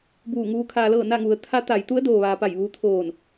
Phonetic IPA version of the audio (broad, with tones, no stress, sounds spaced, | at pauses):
b uː˧˩ ŋ uː˧˥ kʰ aː˧ l ɤː˥˨ n a˥˨ ŋ u˩ ə̯ t̪ʰ a˧˥ t̪ a˩˧ j t̪ u˧˥ ə̯ d oː˩ ʋ aː˩ p a˧˩ j ʋ uː˧ t̪ʰ oː˧˩ n